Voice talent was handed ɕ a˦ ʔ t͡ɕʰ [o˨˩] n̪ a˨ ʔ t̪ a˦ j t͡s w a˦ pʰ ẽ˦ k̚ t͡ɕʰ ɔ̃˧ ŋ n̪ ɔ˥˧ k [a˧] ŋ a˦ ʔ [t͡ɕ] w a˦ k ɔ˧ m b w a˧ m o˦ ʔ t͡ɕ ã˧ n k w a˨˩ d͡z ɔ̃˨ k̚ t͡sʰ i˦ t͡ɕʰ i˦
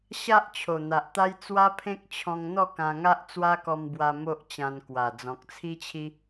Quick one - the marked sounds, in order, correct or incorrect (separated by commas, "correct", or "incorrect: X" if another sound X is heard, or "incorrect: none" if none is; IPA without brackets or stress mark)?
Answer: correct, incorrect: ã˧, incorrect: t͡s